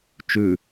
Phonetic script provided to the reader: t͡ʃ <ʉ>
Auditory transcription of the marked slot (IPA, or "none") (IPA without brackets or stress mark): ʉ